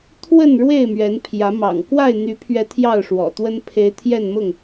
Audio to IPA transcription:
t̪ʰ w ə˥˨ n ɻ w e˥˨ ɪ̯ m ɥ ɛ˨˦ n pʰ j ä˨˦ m ɑ̰˨˩ ŋ k w a˥˨ ɪ̯ n̪ y˨˦ pʰ ɥ ɛ˨˦ t̪ʰ j ɑ˥˨ ʊ̯ ʂ w ɔ̰˨˩ t̪ w ə˦ n pʰ e˨˦ ɪ̯ t̪ʰ j ɛ˥˨ n m ʊ˥˨ ŋ

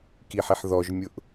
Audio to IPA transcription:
k i ħ i ħ ð ɔ ʒ mʲ ʊ ʔ

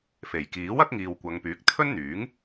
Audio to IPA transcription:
f e˨˩ j k iː˨˥ w ɐ˨˥ k̚ ŋ iː˨ w kʷ ɐ˨˧ ŋ p yː˨˥ k̚ t̪ʰ ɵ˥ n n̪ yː˨˥ ŋ

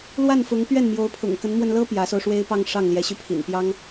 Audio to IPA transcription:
l w a˥˩ n f ʊ˧˥ ŋ p ɥ ɛ˥˩ n m j o˧˥ ʊ̯ pʰ ʊ̰˨˩ ŋ k ə˧˥ n m w ə˧ n l ɤ˥ p j ä˧˥ s o˧ ʊ̯ ʂ w e˥ ɪ̯ p ɑ˥˧ ŋ ʂ ɑ˥˩ ŋ l j ɛ˧˥ ɕ y˧ pʰ ḭ˨˩ n p j ɑ˥ ŋ

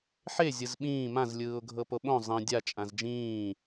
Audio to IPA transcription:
ħ e zʲ ɯ z ɓ ĩː m ã z lʲ ɯː ʊ̯ ɡʱ ɤ p o ɓ õ zˤ ĩ dʲ a t͡ʃʼ ã z d͡ʒ ĩː

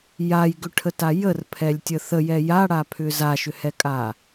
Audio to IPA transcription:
j a j ɡ ʏ ʈʰ ə t a j ə r pʰ ɛ lʲ tʲ ə θ ə j ɛ j a ɽ a pʰ ʏ z a ʃ ʏ h ɛ kʼ a

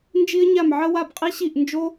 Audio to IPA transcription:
n d͡ʒ i˥ ə̯ ɲ a˥˩ m ʕ ə˥ w a˥˩ b qʼ i˥ ɕ i˥˩ ʔ n d͡ʒ o˥

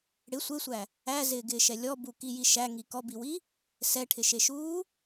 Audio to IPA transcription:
ɽ ɪ sʷ e sʷ æ | æ z ɪː ɡ ɪː ʃ ɛ lʲ ɔ b u k i j i ʃ æ ŋ i k ɔ b i w i | s ɛ ʈʰ ɪ ʃ e ʃ uː

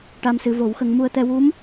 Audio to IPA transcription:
ʈ a˧ m s ɨ˨˩˦ v o˨˩˦ w x ə˧ ŋ m u˧ ə̯ t̪ ɛ˧ w u˧˥ m

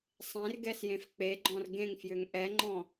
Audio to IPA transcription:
sˤ ẽ r ɡ ɛ s j ẽ f k͡p e ɡ͡ǃ ɔ̃ r ɡ ẽ ŋ f j ʏ ŋ ʔ ɛ ŋ͡ǃ ɔ̃

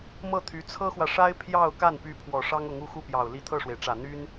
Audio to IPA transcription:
m ɤ˥˩ t̪ʰ y˧˥ t͡sʰ ɤ˥ x w ä˨ ʂ a˥ ɪ̯ pʰ j ɑ˥˧ ʊ̯ k a˥˩ n p y˧˥ pʰ w ɔ˨˩ ʂ ɑ˥ ŋ ʊ˧˥ ŋ u˥˧ x u˥˩ p j ɑ˨˩ ʊ̯ l i˥˧ t̪ʰ ɤ˥˩ ʂ w e˩ ɪ̯ ʈ͡ʂ ä˨˩ n̪ y˥ n

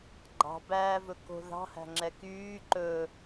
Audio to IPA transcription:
ɡ͡ǃ ɑ̤ b æː v ɵ k o̤ ð ɑ̤ h æ̤ ŋ͡ǁ ɛ k yː ǃ ɵ

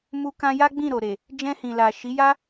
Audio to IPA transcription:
m u˧ k ã˧ j a˦ ɡ͡b ĩ˦˨ ɾ o˨ ɾ e˨ | d͡ʒ ɛ̃˧ h ĩ˨ l a˨ ʃ i˨˦ j a˦

